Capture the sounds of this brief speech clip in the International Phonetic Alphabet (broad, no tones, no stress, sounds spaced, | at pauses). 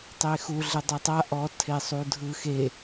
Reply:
tˤ e x u ɮ e dˤ ɯ tˤ a ʔ ɔ tʰ e sˤ u dʱ ɯ x e